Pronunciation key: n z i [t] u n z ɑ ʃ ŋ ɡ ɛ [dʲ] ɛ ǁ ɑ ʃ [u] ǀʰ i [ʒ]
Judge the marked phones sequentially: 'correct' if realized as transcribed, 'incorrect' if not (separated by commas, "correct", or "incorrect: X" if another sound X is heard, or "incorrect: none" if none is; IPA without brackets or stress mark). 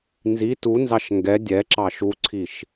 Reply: correct, correct, correct, incorrect: ʃ